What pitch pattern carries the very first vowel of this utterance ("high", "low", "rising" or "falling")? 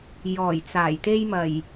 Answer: low